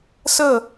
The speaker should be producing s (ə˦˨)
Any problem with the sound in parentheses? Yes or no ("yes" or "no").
no